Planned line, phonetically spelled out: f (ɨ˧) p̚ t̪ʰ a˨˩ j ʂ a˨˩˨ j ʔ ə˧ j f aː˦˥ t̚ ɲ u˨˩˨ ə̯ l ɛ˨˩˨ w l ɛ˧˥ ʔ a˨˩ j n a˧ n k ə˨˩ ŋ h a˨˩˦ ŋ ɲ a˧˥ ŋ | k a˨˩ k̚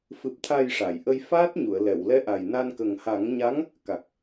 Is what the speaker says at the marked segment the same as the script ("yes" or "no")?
no